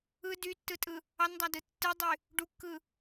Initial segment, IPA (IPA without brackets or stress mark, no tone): ɯ